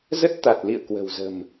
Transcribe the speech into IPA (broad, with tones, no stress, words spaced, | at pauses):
zə˦˥t̚t̪a˨˩t̚lḭ˧˨ə̯ kwə̤˨˩wzə̤˨˩m